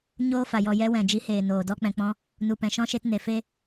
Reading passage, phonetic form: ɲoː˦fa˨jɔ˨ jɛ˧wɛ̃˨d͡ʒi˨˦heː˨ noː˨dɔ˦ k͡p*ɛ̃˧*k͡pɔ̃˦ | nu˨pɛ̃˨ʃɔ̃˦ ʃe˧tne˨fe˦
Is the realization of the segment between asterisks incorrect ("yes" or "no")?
no